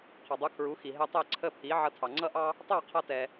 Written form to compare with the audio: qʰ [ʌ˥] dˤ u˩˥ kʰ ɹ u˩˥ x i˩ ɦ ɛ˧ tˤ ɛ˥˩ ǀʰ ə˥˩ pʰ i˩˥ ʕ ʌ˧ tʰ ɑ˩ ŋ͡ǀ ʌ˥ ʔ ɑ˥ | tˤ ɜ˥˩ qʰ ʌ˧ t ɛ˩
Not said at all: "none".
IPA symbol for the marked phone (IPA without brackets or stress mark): ʌ˩